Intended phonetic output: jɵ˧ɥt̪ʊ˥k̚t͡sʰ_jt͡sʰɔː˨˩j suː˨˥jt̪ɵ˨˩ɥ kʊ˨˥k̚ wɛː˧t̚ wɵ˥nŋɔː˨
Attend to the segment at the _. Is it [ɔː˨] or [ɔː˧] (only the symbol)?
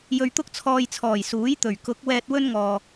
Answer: ɔː˧